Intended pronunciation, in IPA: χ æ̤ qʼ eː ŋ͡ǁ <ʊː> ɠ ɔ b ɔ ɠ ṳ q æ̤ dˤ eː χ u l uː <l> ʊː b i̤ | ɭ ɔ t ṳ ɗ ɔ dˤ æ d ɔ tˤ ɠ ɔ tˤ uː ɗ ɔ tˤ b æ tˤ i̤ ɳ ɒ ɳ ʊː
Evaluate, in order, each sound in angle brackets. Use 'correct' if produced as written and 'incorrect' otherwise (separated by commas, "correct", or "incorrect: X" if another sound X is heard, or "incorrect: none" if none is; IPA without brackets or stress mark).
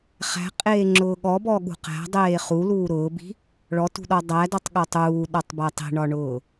correct, incorrect: ɾ